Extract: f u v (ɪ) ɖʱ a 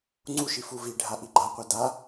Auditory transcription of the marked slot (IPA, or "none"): i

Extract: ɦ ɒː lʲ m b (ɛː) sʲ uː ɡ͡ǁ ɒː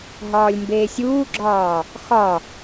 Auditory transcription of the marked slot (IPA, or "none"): eː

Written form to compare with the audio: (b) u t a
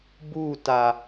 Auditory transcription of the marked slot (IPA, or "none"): b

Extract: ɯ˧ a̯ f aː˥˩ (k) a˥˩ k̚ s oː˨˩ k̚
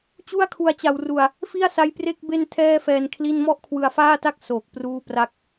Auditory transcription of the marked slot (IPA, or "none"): t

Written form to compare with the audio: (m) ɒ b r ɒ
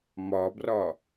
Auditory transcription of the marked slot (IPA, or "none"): m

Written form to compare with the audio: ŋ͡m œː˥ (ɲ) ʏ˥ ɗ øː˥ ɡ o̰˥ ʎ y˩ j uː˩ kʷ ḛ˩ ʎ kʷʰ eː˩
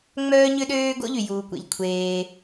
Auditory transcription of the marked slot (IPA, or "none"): ɲ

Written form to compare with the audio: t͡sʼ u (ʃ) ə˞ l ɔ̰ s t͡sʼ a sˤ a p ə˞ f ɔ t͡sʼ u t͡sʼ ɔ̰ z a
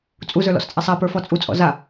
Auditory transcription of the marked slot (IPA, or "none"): z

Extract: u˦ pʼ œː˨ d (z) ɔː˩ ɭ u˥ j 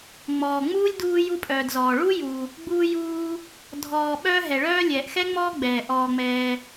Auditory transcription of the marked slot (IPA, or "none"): z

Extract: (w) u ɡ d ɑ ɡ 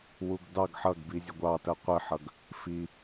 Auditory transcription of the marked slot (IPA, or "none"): w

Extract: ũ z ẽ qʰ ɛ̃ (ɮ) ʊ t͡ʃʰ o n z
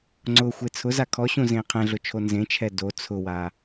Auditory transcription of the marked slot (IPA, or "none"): ɮ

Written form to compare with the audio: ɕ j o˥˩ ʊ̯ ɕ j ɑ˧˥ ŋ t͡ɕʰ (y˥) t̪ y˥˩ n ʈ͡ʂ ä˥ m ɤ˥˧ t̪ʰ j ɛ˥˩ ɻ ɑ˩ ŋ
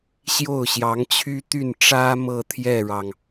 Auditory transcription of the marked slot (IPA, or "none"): y˥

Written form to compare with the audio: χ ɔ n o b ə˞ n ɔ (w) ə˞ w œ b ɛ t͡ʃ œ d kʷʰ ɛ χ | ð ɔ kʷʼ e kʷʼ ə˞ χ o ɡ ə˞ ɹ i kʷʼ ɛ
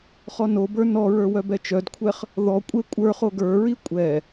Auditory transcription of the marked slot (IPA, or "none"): ɹ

